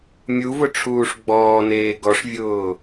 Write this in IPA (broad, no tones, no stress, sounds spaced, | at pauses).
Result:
mʲ u v ʊ ʈ͡ʂʰ uː ʂ ɡ͡b ɔː n eː ɡ ɔ ʂ vʲ ʊː